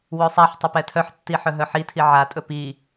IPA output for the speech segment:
wɵsˤaħtˤœp ɛtʰœħtːi ħœɦœħitʰi ʕatʼɵ pi

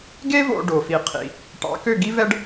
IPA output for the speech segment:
ɡe˥ vo̰˧ɖo˩fi˩˥qʰḭ˩ | ʈɑ̰˩˥kø˥˩ɡi˥ vɛ˥ɖ

